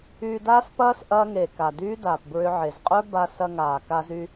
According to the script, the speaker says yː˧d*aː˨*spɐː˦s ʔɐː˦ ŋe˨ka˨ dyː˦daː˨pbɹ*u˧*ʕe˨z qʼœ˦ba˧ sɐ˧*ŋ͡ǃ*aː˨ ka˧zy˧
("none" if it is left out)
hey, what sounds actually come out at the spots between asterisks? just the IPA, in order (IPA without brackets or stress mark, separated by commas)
aː˦, ʏ˧, ŋ